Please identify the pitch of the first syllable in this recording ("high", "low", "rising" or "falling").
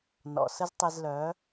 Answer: low